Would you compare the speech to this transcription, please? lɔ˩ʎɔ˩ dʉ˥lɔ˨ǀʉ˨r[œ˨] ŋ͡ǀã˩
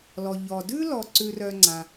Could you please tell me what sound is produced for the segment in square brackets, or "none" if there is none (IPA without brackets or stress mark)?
œ˨